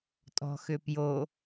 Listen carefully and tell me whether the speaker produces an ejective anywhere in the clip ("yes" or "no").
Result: yes